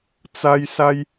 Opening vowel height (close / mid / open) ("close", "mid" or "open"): open